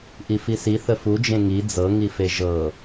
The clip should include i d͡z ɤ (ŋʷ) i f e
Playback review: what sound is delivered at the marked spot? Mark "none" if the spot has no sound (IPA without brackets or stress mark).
ŋ